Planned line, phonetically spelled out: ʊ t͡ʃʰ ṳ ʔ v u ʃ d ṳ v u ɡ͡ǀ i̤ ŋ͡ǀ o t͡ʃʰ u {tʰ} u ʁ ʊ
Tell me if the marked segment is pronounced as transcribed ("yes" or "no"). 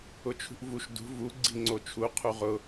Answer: no